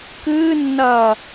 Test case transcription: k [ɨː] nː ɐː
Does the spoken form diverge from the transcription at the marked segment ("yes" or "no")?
no